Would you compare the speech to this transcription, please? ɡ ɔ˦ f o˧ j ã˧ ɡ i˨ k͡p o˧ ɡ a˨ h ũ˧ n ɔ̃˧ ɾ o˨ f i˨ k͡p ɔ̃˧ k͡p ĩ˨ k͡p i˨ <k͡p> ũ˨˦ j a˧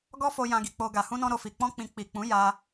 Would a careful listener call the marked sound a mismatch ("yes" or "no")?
no